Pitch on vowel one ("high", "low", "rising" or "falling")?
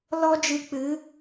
high